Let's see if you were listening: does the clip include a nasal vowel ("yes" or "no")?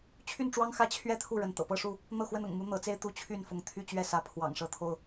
no